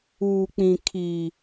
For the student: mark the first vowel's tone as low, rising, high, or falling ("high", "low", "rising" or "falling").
low